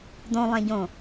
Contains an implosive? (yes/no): no